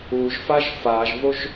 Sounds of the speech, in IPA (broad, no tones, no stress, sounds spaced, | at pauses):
u ʒ f a ʒ f a ʒ v o ʒ